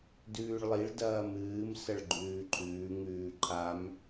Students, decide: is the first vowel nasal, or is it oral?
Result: oral